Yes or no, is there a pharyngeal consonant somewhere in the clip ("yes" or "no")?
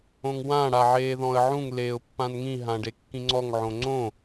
yes